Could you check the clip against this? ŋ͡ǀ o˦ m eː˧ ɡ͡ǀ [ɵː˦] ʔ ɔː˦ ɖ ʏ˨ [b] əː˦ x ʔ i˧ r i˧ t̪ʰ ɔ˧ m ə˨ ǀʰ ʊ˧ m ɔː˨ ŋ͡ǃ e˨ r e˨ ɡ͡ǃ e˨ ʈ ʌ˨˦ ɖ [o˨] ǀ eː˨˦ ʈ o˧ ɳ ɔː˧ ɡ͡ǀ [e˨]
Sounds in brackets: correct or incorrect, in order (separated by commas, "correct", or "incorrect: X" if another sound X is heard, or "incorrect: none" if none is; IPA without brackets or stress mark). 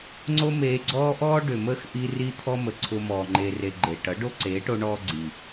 incorrect: ɔː˦, incorrect: m, incorrect: o˦, incorrect: i˨